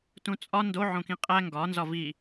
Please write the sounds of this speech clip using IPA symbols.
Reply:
t ũ t͡sʼ ɒ n d o ʕ õ k ĩ qʼ æ ŋ ɡ ɒ n z ɒ v i

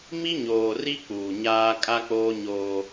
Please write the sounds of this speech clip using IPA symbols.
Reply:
m i˦ ɲ oː˨ r i˦ k͡p uː˨ ɲ aː˦ kʼ a˦ k͡p oː˦ ɲ oː˦

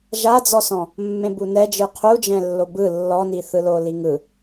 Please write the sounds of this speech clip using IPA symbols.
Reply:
ʒ a d͡z ɔ s ɔ̃ | mː ẽ b u n ɛ d͡ʒ ɯ qʰ u d͡ʒ ɛ̃ lː o b ɯ lː ɔ n i θ ɯ l o l i ŋ ɯ

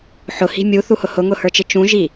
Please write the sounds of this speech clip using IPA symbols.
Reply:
ħ ʊ h i̤ mʲ u θ u h ʊ h ʊ ŋ ʊ h ə˞ t͡ʃ ɪ t͡ʃ ũ ʒ i

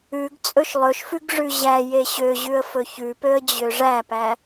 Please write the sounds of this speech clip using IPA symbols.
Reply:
ʉ ɡ t͡sʼ ɵ ʃ lˠ ɵ ʃ f ʉ ɡ ʐ ʉ ʑ æ j e ɕ ø ʑ ʉ ə̯ f ɵ ç ʉ p ø ə̯ d͡ʑ ø ʐ æ p æ

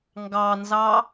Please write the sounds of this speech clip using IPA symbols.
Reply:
ŋ ɡ ɑ n z ɑ

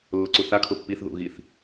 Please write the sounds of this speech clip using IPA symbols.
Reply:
lː ʊ ǀ u θ a kʰ ʊ pː i θ ð ṵ ɣ i θ

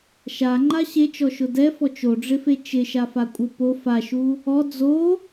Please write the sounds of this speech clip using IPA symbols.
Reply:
ʃ a ŋ͡ǃ a ɕ e t͡ʃ ɔ ʃ ʊ d ɛ f ɔ t͡ʃ o ɖ͡ʐ ɪ f e t͡ʃ ɪ ʃ a f a kʷʼ ɪ p o f a ʃ u | ɔ d͡z o

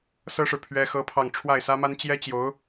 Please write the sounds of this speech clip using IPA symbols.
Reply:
s ɤ˥ ʂ ɻ̩˨ pʰ ɥ ɛ˥ x ɤ˥ pʰ ɑ˥˧ ŋ ʈ͡ʂʰ w a˥˩ ɪ̯ s ä˥ m a˥ n t͡ɕ j ɛ˥ t͡ɕ j o˧˥ ʊ̯

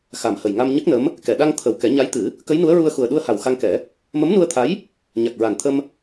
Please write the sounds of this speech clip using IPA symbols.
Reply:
x a˨˩ m h ə˨˩ j ŋ a˧ m ɲ ə˦˥ k̚ n ə˧˥ m | k ɛ˨˩˨ ɗ a˧ ŋ t̪ʰ ə˨˩ w k ɛ˨˩˦ ɲ a˧˥ j t̪ ɨ˨˩˦ | k ə˧˥ j n u˧˥ ə̯ ɹ u˧ ə̯ x u˨˩ ə̯ ɗ u˧ ə̯ h a˨˩ w x a˧ ŋ k ɛ˨˩˦ | m ə˧˥ m n u˧ ə̯ t̪ʰ a˧˥ j | ɲ a˨˩ k̚ ɹ a˨˩ n t̪ʰ ə˧ m

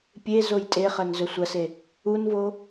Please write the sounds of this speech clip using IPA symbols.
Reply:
pʲ e z o j tʼ e χ ɐ n z ɵ sʷ ɐ s e | u n v o

